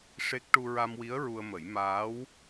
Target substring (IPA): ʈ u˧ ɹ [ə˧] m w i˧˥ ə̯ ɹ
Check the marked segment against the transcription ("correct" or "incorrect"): incorrect